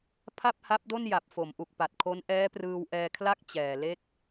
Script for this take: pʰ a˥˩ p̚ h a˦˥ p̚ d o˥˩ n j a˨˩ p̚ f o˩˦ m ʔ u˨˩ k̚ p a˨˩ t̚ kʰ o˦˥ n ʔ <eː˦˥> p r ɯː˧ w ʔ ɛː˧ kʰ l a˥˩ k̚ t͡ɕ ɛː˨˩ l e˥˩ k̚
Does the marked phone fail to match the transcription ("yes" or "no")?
yes